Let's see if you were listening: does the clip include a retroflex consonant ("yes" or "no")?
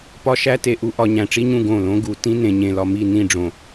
yes